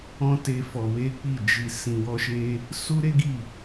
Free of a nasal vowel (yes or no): no